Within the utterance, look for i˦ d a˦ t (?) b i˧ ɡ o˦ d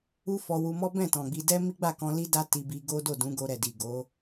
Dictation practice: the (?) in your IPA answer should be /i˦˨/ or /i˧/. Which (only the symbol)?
i˧